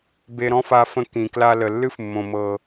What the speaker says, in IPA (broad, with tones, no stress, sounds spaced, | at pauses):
b e˧ ɾ ɔ̃˦ f a˧ f ə̃˧ k ĩ˨ k l a˧ l ə˨ lː ɨ˦ f mː õ˨ m ɤ˨